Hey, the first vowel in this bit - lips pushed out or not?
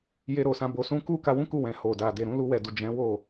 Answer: no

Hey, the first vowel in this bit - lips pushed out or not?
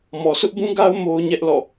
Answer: yes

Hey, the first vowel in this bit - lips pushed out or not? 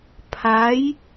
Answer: no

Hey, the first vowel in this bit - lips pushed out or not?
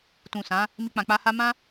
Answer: yes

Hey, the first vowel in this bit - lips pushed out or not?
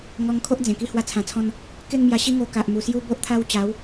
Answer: yes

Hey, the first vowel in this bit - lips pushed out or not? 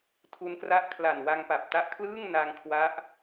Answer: yes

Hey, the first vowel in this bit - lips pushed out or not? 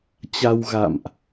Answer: no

